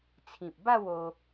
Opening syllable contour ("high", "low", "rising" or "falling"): low